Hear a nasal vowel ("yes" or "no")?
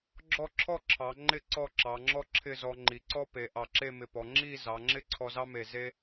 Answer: no